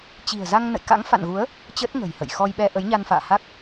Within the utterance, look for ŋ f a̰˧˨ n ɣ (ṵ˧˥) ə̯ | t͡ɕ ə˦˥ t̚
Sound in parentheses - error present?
yes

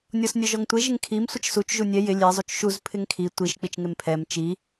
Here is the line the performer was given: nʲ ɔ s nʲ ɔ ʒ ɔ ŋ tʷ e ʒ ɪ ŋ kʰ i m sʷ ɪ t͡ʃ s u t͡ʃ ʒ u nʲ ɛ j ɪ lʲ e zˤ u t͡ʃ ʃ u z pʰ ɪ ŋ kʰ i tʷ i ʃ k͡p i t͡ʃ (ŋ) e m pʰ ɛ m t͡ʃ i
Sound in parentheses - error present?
no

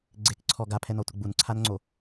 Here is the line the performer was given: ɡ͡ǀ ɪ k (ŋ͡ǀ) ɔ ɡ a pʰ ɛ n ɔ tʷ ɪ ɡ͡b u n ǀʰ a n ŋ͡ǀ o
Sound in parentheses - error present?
yes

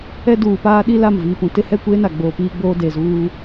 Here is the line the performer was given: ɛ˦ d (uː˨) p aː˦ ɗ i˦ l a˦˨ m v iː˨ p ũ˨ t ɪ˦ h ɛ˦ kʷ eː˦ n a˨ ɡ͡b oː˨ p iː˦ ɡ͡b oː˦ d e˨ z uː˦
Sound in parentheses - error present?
no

